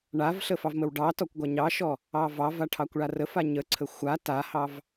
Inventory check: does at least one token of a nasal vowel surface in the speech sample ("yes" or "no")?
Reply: no